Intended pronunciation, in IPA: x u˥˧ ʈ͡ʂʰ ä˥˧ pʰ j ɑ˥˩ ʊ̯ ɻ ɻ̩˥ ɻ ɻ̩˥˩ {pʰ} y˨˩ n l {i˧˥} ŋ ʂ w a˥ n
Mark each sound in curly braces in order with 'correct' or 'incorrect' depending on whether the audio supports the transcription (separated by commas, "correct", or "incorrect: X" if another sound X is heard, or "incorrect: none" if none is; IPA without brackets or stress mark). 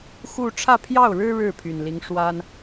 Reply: correct, correct